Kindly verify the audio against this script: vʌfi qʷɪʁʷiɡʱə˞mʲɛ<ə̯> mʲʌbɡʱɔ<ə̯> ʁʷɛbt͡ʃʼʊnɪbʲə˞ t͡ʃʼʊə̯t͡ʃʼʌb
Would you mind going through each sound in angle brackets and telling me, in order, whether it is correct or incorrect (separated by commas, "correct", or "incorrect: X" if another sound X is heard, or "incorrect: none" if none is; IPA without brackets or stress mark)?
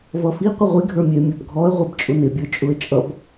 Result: incorrect: ɪ̯, correct